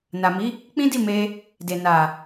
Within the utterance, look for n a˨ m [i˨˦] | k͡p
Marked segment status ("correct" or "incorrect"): correct